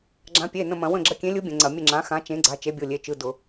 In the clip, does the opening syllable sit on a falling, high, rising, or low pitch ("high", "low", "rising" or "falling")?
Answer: rising